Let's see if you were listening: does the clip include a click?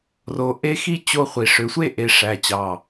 no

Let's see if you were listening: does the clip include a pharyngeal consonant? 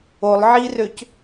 yes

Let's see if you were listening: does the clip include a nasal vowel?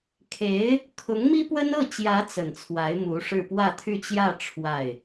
no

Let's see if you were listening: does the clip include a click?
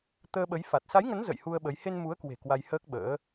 no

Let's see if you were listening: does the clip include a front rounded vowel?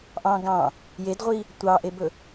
no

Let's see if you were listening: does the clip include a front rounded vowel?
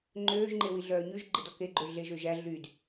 yes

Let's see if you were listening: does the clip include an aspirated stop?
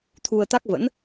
yes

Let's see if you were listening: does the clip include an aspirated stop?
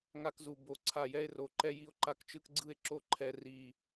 yes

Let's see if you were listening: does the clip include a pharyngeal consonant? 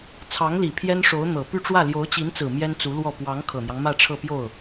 no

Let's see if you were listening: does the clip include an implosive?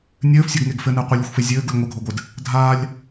no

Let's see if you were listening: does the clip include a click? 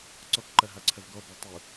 yes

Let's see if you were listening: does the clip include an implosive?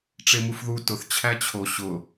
no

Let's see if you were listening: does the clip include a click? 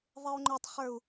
yes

